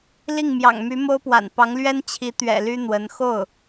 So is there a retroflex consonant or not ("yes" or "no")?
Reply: no